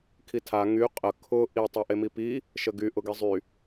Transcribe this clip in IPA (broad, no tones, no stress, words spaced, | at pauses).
kʰitʰa ŋy qʼə kʰʊ ʔi tˤaʔemipi | ʃəɡy ʔʊɡizˤy